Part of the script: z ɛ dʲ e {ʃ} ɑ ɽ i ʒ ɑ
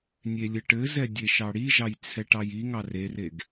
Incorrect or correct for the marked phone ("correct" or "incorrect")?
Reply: correct